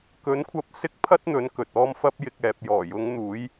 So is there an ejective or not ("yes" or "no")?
no